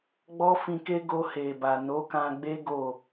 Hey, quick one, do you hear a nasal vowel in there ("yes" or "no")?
yes